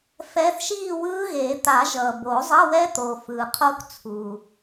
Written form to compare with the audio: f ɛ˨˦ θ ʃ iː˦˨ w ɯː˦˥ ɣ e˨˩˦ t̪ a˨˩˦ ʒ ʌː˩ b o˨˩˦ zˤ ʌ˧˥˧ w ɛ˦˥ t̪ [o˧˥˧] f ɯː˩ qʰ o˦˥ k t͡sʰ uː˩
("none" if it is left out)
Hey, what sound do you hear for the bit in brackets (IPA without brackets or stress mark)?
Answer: o˩